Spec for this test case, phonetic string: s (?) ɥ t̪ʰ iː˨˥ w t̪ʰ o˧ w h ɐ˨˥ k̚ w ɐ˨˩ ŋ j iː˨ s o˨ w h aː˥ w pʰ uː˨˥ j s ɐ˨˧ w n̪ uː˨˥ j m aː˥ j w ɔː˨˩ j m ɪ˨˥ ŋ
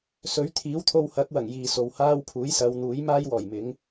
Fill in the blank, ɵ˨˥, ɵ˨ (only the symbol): ɵ˨˥